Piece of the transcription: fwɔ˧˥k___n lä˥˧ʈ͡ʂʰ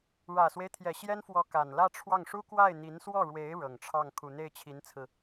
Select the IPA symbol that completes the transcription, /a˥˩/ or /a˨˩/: a˨˩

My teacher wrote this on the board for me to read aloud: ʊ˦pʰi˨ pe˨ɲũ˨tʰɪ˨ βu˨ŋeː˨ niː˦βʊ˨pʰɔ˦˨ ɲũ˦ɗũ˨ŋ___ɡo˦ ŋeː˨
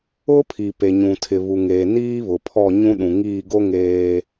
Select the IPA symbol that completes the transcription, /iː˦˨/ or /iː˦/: iː˦˨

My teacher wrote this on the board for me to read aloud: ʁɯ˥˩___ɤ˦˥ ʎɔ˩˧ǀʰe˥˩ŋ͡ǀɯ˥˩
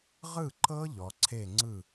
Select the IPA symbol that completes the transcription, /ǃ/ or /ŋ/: ǃ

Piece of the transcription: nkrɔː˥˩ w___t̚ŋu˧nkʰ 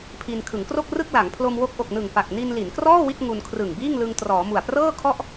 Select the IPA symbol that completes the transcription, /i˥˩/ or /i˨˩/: i˥˩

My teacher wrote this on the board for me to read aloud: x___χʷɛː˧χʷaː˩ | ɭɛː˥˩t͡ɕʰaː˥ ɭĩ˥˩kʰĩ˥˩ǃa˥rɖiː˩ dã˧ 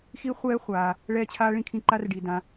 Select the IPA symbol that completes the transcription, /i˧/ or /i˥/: i˧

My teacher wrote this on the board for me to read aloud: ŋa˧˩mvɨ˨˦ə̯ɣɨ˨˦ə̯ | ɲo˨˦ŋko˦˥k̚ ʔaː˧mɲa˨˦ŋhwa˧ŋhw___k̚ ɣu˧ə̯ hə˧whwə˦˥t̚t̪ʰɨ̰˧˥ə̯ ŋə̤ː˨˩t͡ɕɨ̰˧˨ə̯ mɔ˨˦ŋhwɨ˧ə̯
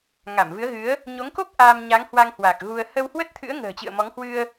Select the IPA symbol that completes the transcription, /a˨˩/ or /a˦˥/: a˨˩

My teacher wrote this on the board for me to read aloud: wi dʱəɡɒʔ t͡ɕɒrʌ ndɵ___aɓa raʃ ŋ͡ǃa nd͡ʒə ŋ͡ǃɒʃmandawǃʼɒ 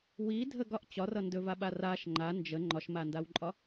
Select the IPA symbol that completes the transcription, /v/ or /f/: v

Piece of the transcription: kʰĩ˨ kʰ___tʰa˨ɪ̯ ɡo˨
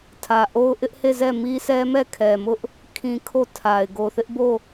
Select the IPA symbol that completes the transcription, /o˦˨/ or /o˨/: o˦˨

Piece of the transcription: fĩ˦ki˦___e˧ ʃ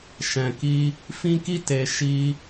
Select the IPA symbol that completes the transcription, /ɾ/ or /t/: t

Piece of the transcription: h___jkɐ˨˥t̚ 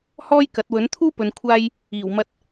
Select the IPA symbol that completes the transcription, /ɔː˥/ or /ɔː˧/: ɔː˥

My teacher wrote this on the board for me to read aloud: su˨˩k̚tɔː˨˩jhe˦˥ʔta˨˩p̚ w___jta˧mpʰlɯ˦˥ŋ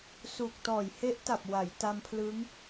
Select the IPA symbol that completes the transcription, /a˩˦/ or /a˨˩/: a˩˦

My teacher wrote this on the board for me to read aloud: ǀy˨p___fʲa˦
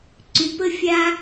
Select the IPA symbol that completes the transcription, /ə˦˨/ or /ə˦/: ə˦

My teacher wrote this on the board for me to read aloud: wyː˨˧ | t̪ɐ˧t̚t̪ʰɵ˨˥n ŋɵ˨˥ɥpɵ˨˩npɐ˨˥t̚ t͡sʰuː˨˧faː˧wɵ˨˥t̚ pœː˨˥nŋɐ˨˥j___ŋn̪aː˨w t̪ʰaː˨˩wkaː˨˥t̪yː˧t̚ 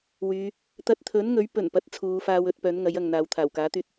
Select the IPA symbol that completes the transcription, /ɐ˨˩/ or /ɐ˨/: ɐ˨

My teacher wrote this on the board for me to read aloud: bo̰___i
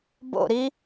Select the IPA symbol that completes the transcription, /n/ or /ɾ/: ɾ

